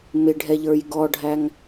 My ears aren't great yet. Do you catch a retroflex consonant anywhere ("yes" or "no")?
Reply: yes